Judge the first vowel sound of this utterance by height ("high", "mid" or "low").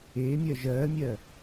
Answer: mid